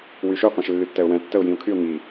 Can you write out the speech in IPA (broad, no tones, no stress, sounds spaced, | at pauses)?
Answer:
w y ʃ ø qʷ ɛ̃ ʃ lː y tː ɛ ʊ̯ w ɛ̃ tː ə ʊ̯ j ĩ ʊ̯ kʰ y ʊ̯ ŋ i